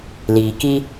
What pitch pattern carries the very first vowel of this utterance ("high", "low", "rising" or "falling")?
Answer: low